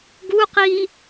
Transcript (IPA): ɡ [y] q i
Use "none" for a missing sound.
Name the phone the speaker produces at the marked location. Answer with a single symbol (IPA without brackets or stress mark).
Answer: u